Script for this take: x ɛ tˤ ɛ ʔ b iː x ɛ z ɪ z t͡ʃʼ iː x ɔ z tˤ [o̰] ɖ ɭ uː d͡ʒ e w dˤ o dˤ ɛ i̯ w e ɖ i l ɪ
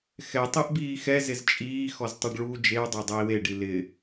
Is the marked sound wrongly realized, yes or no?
yes